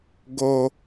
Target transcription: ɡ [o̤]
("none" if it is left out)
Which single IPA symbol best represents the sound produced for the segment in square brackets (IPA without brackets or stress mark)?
o